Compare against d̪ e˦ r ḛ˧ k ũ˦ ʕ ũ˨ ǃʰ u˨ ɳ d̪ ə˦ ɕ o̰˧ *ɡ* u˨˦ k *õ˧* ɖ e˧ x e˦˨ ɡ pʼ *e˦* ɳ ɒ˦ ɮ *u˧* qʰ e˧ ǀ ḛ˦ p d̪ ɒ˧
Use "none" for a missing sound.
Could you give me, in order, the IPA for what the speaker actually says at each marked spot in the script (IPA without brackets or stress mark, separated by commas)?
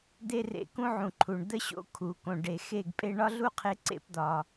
kʰ, õ˧, e˧, u˦